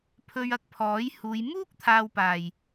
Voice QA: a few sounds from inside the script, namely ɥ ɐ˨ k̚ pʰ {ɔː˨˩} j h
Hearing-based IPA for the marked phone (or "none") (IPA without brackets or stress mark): ɔː˨˥